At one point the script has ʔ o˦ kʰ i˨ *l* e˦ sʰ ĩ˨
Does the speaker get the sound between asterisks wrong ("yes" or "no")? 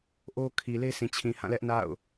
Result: no